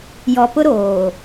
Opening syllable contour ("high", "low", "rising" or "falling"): low